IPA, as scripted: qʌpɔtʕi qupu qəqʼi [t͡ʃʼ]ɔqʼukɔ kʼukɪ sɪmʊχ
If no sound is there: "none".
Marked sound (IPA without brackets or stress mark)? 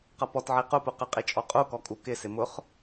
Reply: t͡ʃʼ